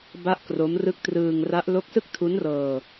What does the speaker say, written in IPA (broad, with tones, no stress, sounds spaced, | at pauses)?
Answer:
b a˥˩ ʔ k r o˦˥ m r ɯ˦˥ k̚ t r ɯː˧ ŋ r a˦˥ ʔ l o˦˥ k̚ s ɯ˥˩ k̚ tʰ u˦˥ n r ɤː˧